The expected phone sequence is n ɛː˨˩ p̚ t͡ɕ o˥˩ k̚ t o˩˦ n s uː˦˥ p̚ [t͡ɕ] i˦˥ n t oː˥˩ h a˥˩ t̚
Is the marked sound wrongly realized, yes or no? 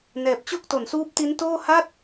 yes